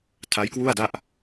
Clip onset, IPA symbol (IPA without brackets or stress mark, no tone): tʰ